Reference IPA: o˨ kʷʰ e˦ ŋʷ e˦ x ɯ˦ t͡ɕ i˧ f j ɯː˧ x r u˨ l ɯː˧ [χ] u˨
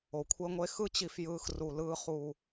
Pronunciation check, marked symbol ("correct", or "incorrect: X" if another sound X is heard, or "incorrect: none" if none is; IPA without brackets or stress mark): correct